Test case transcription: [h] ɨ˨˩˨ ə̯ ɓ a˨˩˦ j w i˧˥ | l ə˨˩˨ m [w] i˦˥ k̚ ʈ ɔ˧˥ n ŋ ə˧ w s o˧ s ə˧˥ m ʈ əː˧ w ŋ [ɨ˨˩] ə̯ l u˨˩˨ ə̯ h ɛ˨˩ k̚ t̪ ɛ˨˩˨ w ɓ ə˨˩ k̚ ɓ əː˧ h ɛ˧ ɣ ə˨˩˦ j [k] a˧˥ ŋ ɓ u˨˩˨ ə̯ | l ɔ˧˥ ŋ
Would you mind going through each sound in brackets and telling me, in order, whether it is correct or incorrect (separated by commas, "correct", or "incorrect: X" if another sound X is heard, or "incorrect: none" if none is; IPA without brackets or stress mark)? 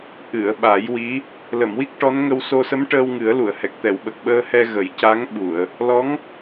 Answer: incorrect: ʔ, correct, incorrect: ɨ˨˩˦, incorrect: c